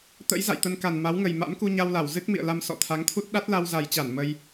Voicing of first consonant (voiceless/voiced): voiceless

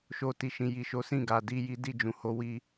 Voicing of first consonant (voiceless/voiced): voiceless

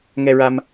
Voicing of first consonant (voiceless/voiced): voiced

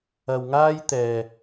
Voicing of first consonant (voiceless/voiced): voiced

